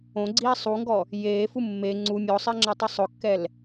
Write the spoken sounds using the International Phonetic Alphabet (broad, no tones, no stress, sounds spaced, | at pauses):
õ ɡ͡ǀ iː sˤ u ŋ ɡ ɔ | j eː f u mː e ŋ͡ǀ u mʲ ɔ sˤ ɪː ŋ͡ǁ a tˤ ʊ sˤ ʊ kː ɛ l